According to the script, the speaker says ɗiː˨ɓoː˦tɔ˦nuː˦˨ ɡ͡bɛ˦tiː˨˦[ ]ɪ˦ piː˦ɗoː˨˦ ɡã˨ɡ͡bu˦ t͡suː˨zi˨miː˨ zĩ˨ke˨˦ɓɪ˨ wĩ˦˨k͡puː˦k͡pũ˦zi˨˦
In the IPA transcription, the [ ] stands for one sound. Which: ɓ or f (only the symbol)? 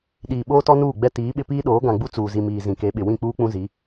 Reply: ɓ